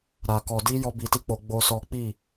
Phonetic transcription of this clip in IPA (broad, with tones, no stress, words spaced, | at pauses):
ɾa˨kɔ˨di˧ jɔ˦bi˧ti˦k͡po˧ ɡ͡bo˦sɔ˦ k͡pi˦˨